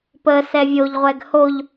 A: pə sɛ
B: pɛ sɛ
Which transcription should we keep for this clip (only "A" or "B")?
A